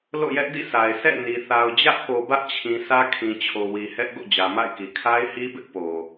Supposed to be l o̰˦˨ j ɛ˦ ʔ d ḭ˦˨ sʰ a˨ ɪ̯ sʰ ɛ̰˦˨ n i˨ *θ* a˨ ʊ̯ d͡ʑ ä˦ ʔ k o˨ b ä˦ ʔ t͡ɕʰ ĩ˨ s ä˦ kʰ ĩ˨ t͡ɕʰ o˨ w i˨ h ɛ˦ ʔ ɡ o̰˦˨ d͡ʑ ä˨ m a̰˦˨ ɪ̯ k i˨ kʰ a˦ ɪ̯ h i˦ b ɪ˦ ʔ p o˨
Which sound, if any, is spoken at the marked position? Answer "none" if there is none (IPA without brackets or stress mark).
θ